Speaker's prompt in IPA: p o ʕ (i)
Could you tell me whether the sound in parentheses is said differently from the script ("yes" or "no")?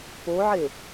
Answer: yes